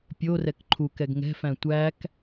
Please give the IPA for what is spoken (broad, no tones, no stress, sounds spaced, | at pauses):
pʲ o r ɛ k ǃʰ u k ɛ ɡ ŋ ɛ̤ f æ̃ tʷ æ k